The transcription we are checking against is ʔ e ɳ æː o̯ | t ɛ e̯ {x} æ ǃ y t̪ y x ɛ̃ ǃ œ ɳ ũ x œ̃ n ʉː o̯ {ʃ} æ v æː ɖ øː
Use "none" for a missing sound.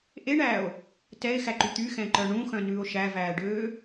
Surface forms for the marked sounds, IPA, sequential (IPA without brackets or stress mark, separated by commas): x, ʃ